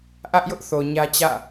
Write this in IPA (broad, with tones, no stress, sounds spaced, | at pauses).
ʔ ä˦ ʔ j ʊ˦ ʔ θ o˨ ɲ ä˦ t͡ɕ ä̰˦˨